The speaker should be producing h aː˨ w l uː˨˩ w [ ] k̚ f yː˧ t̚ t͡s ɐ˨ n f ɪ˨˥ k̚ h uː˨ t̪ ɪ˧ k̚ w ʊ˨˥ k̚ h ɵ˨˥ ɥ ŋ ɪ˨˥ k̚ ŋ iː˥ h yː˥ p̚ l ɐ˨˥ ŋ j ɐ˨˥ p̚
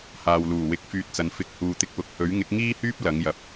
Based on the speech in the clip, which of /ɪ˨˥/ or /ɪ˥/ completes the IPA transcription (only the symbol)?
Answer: ɪ˨˥